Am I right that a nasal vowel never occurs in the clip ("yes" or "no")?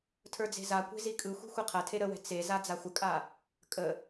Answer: yes